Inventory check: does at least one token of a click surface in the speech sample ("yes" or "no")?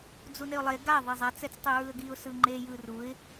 yes